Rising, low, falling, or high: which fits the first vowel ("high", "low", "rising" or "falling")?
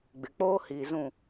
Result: low